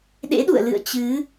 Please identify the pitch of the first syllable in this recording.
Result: rising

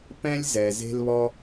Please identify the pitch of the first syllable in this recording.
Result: high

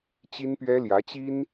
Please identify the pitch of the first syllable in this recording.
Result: high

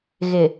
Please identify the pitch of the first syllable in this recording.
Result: low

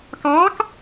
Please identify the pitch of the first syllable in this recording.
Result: rising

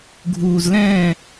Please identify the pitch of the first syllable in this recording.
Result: low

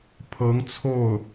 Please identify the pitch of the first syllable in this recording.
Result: rising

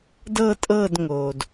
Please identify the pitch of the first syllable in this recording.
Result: falling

